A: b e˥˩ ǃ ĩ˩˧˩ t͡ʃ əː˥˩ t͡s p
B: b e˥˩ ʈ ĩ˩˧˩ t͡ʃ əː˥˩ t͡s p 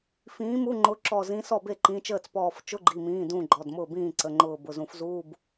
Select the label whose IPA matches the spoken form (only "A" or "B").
A